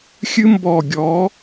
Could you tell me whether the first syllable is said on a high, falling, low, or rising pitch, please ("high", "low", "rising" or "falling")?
high